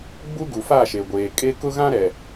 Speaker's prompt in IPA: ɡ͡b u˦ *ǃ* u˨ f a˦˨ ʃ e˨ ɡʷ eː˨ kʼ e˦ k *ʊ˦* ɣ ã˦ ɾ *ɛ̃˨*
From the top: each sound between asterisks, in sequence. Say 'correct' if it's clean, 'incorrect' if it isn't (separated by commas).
incorrect, correct, incorrect